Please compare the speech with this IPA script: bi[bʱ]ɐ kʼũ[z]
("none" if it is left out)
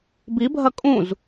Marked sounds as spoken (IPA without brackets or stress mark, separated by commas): bʱ, z